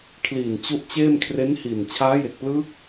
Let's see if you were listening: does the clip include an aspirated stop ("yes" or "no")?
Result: yes